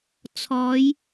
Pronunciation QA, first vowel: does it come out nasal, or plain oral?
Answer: oral